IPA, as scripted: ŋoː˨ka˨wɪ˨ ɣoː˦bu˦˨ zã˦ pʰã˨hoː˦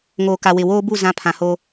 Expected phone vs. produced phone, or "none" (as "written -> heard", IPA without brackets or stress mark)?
ɣ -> w